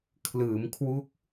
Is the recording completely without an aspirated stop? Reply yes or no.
no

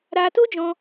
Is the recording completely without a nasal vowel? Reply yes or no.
no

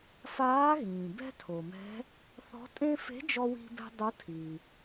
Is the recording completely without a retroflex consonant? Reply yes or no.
yes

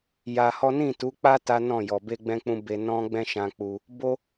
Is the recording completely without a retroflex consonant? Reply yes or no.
yes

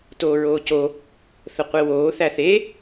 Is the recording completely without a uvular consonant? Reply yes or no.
no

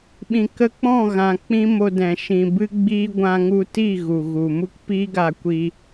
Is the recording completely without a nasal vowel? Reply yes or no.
no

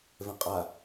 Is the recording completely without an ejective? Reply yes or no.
no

